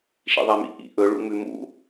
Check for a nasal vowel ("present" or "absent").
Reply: absent